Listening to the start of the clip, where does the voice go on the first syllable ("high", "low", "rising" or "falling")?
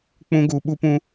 high